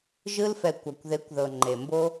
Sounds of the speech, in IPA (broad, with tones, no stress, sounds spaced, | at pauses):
ʒ ɯ˧ l f ɛ˨ kʷ a˨ kʷ ð e˨˦ kʷ ð ɤ˨ ŋ͡ǃ e˨ m b o˦